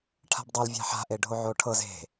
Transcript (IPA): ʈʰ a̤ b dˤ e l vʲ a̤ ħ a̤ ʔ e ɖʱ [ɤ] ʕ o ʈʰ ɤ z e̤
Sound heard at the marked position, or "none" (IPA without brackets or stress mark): o